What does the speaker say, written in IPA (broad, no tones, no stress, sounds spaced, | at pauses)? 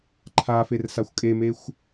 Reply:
ǃʰ a f e r s a xʷ kʼ e m e xʷ